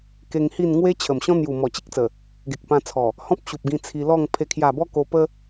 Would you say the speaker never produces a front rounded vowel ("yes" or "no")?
yes